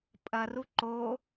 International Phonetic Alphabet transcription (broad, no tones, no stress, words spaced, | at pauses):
pʼɐru ǃo